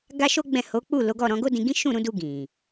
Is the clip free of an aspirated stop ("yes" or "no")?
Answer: yes